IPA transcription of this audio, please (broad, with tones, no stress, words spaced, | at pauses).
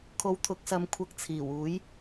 kʰo˨˧wt̪ʰʊ˨˥k̚sɐ˨˧m kʷʰɐ˧k̚t͡sʰiː˨˩wuː˨˥j